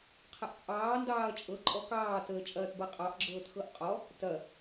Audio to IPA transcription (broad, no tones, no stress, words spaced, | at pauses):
qʰɐʔt͡sʼɑː ndɑːɐ̯t͡ʃʼɤ ǃʼɔkɑː təːt͡ʃʼɐːtbɐqʼɑʔ ɡ͡ǁɤːtxɤʔqʼɔ | tɐ